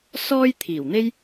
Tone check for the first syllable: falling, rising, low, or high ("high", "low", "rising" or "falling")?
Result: high